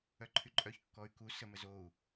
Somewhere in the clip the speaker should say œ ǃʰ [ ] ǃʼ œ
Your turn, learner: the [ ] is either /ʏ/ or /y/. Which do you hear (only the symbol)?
y